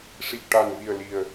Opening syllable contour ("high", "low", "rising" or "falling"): low